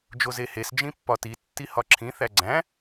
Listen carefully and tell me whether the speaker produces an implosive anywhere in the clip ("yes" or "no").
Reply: no